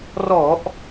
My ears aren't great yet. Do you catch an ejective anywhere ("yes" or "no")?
no